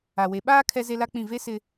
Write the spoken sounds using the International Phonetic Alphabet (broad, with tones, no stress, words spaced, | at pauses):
a˨we˨ɓaː˦ kʰɛ˦ze˦la˦k͡pĩ˦˨ ve˦sɪ˦